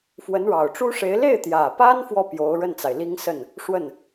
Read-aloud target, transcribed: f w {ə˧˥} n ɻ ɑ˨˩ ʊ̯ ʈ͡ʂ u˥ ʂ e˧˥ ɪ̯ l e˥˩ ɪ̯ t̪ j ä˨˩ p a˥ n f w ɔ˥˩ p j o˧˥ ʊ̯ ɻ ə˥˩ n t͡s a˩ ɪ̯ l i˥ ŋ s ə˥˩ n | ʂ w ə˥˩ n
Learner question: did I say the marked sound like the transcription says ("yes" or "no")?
yes